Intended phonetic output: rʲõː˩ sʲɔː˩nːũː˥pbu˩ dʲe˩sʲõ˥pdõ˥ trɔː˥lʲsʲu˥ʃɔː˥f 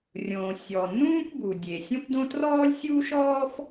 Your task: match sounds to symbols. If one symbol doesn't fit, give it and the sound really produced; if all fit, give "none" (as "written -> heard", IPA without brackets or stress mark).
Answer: none